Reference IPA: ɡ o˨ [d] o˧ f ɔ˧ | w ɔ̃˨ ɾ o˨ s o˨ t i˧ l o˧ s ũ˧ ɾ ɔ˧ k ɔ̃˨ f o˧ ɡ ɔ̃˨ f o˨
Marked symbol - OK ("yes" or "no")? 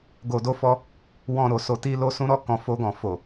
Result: yes